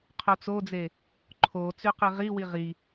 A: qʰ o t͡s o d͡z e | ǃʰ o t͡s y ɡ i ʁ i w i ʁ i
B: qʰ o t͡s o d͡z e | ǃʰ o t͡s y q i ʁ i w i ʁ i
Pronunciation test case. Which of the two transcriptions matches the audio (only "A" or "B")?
B